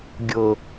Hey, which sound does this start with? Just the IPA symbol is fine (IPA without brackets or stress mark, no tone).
ɡʲ